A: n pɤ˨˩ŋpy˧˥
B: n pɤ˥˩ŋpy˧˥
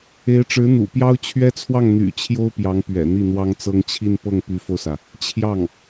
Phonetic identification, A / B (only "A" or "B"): B